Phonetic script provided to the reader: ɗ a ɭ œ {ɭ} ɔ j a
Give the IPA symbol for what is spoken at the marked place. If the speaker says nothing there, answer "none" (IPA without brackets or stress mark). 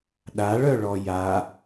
ɭ